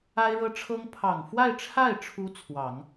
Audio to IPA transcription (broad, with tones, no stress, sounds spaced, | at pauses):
a˥ ɪ̯ ɻ ɤ˥ ʈ͡ʂʰ ɤ˥ ŋ pʰ ɑ˨˩ ŋ f w a˥˧ ɪ̯ ʈ͡ʂʰ a˥˩ ɪ̯ ʈ͡ʂʰ u˧˥ t͡sʰ w ɑ˨˩˦ ŋ